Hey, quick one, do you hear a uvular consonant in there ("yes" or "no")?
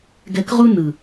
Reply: yes